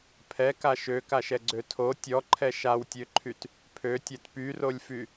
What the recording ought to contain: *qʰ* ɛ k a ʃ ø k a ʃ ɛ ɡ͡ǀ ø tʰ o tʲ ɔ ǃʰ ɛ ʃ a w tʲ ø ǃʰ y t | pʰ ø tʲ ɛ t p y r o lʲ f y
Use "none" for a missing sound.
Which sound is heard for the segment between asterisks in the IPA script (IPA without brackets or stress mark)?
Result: pʰ